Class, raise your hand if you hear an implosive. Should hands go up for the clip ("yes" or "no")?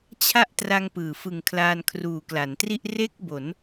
no